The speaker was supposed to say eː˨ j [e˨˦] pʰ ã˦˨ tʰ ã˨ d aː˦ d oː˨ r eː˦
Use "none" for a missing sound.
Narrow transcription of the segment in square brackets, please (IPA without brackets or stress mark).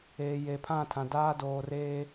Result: e˨